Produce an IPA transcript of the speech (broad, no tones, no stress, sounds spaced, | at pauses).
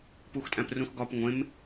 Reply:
p u x tʼ æ̃ p r ũ x ɡ ɒ p ŋʷ ẽ m